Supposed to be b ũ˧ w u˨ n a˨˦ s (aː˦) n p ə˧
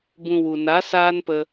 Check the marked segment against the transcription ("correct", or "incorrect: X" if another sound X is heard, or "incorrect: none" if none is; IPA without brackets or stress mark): correct